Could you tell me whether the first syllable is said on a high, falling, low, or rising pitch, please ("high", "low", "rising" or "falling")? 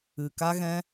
low